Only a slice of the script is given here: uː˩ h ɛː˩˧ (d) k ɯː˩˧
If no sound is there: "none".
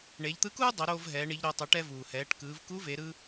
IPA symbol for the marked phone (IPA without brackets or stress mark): ʈ